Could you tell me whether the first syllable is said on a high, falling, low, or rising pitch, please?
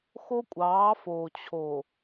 high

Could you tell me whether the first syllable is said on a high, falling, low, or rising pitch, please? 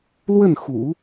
falling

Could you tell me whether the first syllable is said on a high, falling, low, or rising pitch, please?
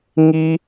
high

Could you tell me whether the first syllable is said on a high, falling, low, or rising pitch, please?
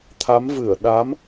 rising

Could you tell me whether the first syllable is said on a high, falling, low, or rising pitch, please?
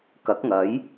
rising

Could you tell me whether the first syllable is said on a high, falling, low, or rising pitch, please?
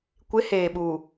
rising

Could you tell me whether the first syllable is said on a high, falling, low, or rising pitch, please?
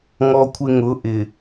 high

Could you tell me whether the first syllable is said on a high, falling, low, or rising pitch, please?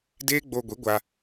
high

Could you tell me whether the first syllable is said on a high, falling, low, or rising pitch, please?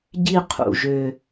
falling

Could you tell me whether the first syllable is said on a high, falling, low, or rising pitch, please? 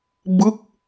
falling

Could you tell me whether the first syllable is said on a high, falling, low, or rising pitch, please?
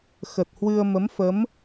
low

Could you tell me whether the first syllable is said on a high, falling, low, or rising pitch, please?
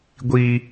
low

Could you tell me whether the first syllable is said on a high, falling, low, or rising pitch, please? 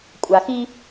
low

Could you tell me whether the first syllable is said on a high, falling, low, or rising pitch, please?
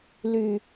low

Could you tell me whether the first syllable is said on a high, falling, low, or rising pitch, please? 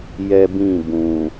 high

